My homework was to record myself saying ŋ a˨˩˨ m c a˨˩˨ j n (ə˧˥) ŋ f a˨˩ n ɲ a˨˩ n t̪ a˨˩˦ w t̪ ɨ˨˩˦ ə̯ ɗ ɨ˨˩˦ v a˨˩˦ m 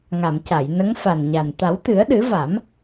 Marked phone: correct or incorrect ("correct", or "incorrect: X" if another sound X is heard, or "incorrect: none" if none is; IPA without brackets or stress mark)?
correct